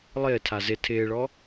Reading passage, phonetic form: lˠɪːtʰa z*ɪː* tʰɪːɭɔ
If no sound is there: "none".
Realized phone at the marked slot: ɪ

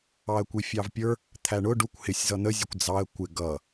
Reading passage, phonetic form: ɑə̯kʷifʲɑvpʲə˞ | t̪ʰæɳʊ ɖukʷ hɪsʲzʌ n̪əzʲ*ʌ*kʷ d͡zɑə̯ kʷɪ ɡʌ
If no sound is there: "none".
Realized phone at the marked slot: ʌ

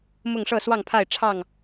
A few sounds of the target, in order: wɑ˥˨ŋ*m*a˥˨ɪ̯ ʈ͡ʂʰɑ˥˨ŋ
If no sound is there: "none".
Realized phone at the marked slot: pʰ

